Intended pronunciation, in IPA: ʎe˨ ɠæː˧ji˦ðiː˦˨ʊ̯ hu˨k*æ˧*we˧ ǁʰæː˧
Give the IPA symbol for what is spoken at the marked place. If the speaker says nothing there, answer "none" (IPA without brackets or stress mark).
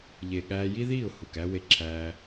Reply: æ˧